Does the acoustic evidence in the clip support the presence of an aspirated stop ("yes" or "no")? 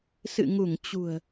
no